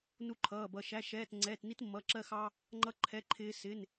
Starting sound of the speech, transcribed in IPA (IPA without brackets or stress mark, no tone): n